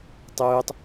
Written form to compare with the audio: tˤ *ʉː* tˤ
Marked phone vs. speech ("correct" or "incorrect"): correct